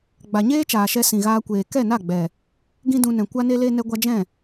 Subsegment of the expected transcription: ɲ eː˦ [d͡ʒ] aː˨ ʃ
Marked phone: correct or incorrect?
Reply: incorrect